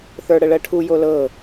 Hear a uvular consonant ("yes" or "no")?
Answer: no